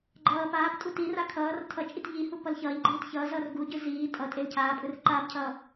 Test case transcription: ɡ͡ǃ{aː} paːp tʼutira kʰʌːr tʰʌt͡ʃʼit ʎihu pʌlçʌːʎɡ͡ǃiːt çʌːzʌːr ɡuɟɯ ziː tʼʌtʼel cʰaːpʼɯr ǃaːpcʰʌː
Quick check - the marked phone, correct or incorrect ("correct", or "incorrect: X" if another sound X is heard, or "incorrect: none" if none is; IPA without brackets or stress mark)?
incorrect: ʌː